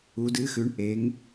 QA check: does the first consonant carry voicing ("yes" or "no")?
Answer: yes